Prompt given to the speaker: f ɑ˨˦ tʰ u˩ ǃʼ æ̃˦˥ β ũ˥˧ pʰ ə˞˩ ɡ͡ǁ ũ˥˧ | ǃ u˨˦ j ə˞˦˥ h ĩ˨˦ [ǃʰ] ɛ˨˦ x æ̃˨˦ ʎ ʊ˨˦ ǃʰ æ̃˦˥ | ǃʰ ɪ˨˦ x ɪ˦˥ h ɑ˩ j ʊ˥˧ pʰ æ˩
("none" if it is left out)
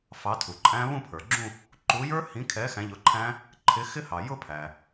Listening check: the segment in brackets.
kʰ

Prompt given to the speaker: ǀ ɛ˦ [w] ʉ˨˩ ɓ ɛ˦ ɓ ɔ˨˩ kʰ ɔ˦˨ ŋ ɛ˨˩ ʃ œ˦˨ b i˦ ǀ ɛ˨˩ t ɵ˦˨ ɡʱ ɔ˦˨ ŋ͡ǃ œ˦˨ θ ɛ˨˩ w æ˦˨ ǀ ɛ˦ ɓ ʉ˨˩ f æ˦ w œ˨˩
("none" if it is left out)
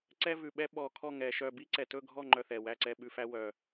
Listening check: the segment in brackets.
v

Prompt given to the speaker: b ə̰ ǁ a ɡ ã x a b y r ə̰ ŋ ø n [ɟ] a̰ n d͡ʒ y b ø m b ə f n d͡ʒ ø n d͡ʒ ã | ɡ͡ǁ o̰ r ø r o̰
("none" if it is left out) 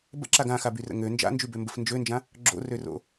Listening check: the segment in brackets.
d͡ʒ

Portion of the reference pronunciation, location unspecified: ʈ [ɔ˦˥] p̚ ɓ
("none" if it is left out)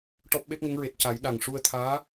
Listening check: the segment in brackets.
ɔ˦˥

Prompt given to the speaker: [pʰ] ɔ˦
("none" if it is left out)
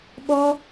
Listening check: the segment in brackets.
ɓ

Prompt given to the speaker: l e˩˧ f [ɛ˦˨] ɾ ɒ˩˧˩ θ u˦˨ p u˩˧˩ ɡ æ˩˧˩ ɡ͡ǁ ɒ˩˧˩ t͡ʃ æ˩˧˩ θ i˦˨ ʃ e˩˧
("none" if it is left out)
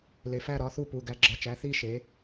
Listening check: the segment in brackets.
æ˦˨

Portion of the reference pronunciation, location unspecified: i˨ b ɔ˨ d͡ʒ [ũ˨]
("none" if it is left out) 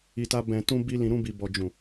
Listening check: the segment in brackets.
ũ˨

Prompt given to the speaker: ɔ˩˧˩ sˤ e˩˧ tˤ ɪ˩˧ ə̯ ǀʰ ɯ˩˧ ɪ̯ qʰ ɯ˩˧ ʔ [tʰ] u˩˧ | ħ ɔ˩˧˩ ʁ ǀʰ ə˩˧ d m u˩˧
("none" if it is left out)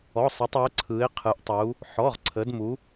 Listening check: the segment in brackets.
tˤ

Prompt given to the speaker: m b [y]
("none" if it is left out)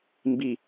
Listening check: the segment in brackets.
i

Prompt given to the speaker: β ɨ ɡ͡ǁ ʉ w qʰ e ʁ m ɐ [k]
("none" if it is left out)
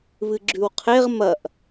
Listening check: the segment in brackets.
ʔ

